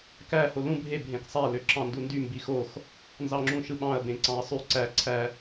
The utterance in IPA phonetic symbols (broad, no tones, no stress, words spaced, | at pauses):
kæ holũ bʱe bʱẽksˤæ løǁɑ̃ndundy mbixox | nzɑŋ͡ǁũʃɯɓɑ̃ɐ̯ bẽǀɑ̃ɐ̯sˤy ǀæ ǀʰæ